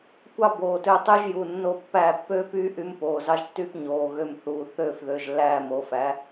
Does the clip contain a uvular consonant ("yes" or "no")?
no